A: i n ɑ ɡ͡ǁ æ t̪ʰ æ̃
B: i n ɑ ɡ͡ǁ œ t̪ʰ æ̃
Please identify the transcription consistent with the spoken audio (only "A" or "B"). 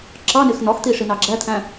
A